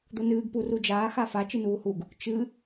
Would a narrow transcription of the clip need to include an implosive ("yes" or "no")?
no